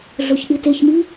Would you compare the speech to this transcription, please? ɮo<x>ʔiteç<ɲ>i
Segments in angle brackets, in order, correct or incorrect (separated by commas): incorrect, incorrect